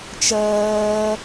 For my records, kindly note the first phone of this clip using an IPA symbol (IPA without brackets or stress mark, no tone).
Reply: t͡ʃ